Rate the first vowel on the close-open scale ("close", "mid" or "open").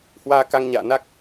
open